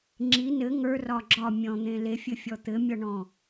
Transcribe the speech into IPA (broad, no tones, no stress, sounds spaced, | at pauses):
ŋ͡ǁ i n ɘ ŋ ə˞ r ɒ ɡ͡ǁ ɒ mʲ ɔ̃ n̪ ẽ l e fʲ ɘ fʲ ɔ t̪ ɘ mʲ ɔ ɳ ɔ̃